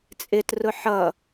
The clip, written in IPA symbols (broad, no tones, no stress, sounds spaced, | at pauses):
t͡sʼ ɪ t r ʊ ħ ʌ